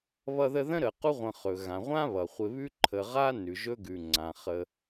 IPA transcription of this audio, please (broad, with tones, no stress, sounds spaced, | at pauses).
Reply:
β ʌ˦ ð ə˦ ð ə̃˥ ɾ ə˨ q u˦ ʁʷ ə̃˨ χ ɵ˩ ɣ ã˩ ʁʷ ã˥ β ʌ˩ χʷ ɪ˨ β ʉ˦ ǃʰ ə˨ ʁ a˥ n ʉ˩ ʒ ɵ˦ ɡ ʉ˩ ŋ͡ǀ ã˩ χ ə˨